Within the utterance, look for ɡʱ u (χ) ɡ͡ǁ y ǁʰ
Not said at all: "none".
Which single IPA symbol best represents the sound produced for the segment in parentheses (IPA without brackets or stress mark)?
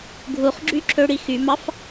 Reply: χ